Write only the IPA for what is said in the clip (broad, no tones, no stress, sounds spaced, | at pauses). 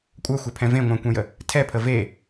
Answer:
kʷʼ œ xʷ œ pʰ ɛ̃ v ẽ ŋʷ œ̃ kʷ ɛ̃ j ə | tʰ ɛ pʰ ə v e